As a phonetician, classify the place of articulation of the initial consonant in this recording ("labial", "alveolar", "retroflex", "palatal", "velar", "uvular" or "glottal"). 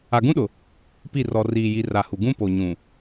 velar